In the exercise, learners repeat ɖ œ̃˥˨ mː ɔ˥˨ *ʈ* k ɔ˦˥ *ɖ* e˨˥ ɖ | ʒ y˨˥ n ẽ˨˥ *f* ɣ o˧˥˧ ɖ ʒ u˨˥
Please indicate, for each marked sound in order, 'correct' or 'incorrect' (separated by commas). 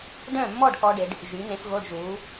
incorrect, correct, correct